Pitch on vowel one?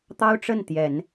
high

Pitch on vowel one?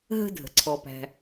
high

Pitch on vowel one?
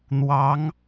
rising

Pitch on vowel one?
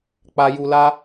low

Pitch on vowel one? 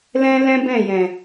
high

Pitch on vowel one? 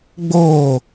falling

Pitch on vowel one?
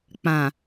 low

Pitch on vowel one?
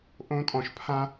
high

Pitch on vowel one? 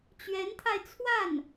rising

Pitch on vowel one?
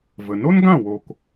low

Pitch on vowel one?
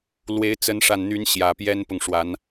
rising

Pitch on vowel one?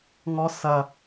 high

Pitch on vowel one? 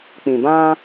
low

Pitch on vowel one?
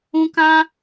high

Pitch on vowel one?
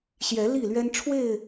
rising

